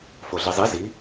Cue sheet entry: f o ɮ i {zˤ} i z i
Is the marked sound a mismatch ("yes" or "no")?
no